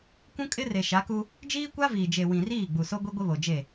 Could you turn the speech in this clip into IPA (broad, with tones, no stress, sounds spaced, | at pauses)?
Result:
kʷ ũ˦ kʼ ɪ˦ r e˨ ʃ a˨˦ k u˦ | d͡ʒ iː˦ kʷ a˦ v iː˨ d͡ʒ e˨ w ĩ˨ r iː˦˨ ɡ͡b u˨ s o˦ ɡʷ i˦ ɡʷ ɪ˦ β o˨ d͡ʒ e˦˨